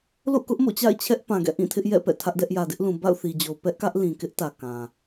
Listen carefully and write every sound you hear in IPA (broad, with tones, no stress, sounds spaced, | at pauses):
l o̰˦˨ k ʊ˦ ʔ m o̰˦˨ t͡ɕ a̰˦˨ ɪ̯ t͡ɕʰ ɛ˦ ʔ p ã˨ ɡ ɛ̰˦˨ ʔ ĩ˦˨ tʰ ɪ˦ ʔ j ɛ̰˦˨ p ɛ̰˦˨ tʰ ä˦ ʔ d ɛ˦ ʔ j ä˨ d ɪ˦ ʔ l ũ˨ b a̰˦˨ ʊ̯ θ i˨ d͡ʑ o˨ ʊ̯ p ɛ˦ ʔ k ä˦ ʔ l ĩ˨ k ɪ˦ ʔ t ä˨ k ã˨